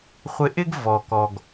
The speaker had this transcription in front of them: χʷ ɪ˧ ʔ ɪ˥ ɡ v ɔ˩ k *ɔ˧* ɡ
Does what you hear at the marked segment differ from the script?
yes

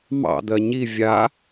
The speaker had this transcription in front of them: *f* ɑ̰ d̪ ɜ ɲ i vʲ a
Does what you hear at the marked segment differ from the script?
yes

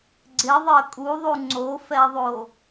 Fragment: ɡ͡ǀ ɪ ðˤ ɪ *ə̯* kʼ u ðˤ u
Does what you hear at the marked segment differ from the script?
no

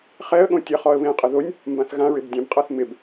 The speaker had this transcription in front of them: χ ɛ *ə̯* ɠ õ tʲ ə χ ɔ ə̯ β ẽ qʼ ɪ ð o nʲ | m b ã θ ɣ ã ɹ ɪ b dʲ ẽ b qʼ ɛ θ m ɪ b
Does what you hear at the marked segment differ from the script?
no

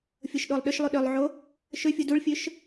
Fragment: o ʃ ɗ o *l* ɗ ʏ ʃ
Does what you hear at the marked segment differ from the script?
yes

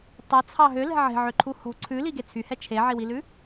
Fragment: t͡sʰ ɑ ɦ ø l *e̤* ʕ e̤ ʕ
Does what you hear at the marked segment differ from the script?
yes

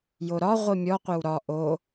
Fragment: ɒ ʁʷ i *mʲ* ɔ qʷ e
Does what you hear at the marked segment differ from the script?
no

